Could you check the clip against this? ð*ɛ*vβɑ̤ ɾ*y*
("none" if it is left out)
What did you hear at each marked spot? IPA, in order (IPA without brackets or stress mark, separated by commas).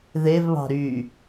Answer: e, y